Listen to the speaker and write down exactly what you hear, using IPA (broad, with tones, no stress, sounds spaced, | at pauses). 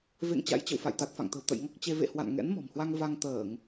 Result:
v ḛ˧˨ ŋ t͡ɕ a̰˧˥ j t͡ɕ ə̰˧˨ w f a̰˧˨ j t̪ a˨˩ t̚ f a̰˧˨ ŋ t̪ ə̤˨˩ w t̪ ə̰˧˨ j ŋ ɔ˦˥ k̚ t͡ɕ e˧ v ḛ˧˨ h w a̰˧˨ n ŋ ɛ̰˧˥ n m ɔ̤˨˩ m h w a˧ ŋ v a˧ ŋ t̪ əː˧˩˨ ŋ